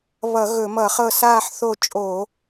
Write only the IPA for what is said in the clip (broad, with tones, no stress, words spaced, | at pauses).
βʌ˧˩˧ɣɵ˧˩˧mʌ˧˩˧χɤ˦˨ saː˦˨ħθo˦˨t͡ʃʼo˧˩˧